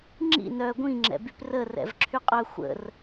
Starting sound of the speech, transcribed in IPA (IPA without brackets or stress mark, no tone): ŋ͡ǁ